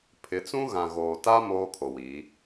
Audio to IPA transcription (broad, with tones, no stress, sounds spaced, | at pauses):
pʰ ɪ˨˦ t͡s ũ˦ ɣ ã˨ ɣ oː˨ t a˦ m oː˦ kʰ o˨ w i˨˦